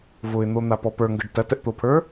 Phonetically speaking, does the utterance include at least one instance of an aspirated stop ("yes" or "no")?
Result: yes